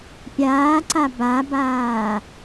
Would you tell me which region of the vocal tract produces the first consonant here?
lips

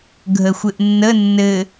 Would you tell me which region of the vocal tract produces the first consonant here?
velum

